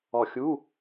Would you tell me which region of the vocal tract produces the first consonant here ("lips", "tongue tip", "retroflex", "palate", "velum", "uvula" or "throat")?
velum